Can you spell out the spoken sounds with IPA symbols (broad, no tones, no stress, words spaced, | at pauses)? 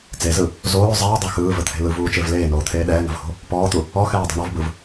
t͡sezɯ | zoː zˤɛːdˤo xɯːvət̪ʰe̤ lɯvuːt͡ʃev leːnoːt̪ʰeː ɗɛːŋə̤vho̤ | pɔːt̪u | ɔxɛːdˤe̤ ɳɔvbɯv